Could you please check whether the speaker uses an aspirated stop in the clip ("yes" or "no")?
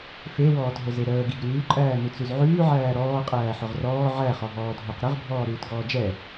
no